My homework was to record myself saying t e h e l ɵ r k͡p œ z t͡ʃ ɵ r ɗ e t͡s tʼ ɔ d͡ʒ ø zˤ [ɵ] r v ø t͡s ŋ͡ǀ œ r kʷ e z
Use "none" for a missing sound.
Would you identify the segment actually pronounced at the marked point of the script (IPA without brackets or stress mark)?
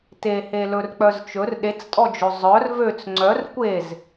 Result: œ